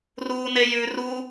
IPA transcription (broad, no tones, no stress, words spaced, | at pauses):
ruːnejʉ ru